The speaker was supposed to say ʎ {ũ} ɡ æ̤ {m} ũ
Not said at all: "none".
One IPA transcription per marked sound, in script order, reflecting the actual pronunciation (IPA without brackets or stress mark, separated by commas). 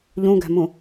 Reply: ũ, m